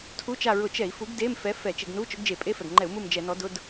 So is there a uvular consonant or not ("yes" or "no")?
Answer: no